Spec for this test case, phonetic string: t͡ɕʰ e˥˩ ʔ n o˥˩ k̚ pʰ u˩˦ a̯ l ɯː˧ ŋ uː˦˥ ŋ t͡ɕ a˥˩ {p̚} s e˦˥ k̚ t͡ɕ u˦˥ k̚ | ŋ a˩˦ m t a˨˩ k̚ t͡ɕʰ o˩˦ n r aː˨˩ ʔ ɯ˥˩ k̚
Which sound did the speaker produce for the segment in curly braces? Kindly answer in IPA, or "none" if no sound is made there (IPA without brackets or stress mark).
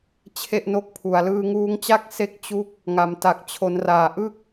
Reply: k̚